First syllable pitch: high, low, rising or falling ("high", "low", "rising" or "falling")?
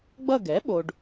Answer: falling